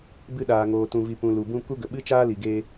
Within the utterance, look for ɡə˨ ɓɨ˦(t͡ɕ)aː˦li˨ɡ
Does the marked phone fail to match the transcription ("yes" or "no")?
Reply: yes